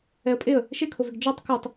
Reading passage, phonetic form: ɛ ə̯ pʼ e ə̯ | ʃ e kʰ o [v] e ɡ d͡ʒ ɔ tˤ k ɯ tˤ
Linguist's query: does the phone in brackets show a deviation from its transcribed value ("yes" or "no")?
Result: no